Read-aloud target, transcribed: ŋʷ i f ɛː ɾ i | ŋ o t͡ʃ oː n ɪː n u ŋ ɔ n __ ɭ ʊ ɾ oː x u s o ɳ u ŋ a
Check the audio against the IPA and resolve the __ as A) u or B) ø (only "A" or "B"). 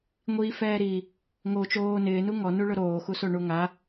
A